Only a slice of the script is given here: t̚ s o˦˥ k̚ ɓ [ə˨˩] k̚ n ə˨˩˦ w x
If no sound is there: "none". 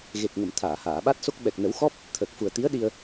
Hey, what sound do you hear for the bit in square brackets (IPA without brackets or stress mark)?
ɛ˨˩